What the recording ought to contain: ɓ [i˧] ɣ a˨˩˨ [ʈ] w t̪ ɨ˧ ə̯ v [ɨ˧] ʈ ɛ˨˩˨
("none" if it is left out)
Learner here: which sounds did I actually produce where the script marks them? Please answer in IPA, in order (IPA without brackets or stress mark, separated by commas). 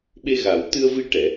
e˧, none, i˧